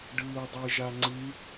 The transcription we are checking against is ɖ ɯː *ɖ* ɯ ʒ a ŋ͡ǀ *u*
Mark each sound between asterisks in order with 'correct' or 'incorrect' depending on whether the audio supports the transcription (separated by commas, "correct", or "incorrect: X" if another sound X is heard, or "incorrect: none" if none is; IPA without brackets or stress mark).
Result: incorrect: dˤ, incorrect: ɯ